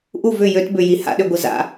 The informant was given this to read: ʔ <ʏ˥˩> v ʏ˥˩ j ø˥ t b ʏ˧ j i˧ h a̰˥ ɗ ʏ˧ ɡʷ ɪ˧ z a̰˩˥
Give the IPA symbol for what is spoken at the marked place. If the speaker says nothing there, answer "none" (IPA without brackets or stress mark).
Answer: u˥˩